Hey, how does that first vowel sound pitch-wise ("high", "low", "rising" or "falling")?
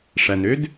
low